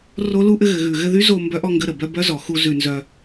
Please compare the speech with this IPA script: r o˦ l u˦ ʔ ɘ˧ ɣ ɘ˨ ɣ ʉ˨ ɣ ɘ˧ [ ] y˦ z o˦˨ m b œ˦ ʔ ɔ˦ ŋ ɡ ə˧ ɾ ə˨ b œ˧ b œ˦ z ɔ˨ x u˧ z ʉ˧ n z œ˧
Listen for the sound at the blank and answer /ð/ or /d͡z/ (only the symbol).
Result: ð